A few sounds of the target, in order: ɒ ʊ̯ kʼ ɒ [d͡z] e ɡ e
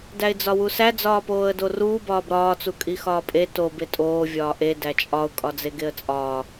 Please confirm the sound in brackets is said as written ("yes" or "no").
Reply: yes